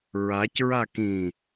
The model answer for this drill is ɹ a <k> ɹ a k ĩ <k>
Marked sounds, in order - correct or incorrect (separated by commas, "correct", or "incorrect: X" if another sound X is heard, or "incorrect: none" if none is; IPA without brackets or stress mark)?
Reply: incorrect: c, incorrect: none